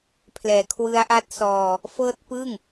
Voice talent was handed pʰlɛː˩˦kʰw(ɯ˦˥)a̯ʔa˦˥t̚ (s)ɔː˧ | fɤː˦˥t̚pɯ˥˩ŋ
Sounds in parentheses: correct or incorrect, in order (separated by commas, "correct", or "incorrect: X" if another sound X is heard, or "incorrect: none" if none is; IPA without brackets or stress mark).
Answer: correct, correct